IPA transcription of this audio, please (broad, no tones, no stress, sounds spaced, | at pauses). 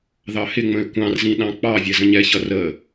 ð ɑ h ɪ ŋ͡m ə̃ e̯ kʷ ɑ̃ r z ĩ ɗ ɑ̃ k͡p ɑ vʲ ɛ z ə̃ ɲ ɛ ç ʌ r ə